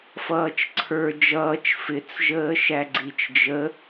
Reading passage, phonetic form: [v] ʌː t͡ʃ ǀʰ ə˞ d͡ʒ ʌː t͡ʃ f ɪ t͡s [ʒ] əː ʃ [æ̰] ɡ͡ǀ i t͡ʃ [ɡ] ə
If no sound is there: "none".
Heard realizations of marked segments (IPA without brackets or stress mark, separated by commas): f, ʒ, æ, d͡ʒ